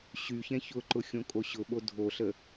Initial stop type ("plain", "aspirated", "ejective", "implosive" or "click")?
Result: click